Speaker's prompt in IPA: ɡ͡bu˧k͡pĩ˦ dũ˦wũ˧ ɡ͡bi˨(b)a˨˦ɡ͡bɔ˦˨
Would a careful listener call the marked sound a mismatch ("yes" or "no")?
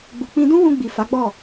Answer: yes